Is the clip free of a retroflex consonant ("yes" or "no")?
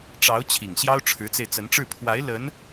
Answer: no